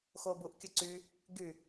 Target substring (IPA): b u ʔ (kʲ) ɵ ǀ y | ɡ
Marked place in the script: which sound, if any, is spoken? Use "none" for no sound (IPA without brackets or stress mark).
kʲ